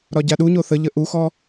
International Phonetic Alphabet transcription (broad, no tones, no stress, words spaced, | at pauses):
ɾɒɟaɗuɲo θəʎə ʔuxɔ